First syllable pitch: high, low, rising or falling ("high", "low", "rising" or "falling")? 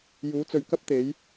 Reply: rising